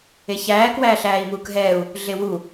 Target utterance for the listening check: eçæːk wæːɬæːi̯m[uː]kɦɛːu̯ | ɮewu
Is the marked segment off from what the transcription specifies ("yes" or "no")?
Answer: no